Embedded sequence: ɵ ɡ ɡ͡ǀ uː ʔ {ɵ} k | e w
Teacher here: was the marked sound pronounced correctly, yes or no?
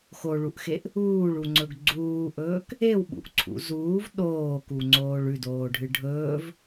no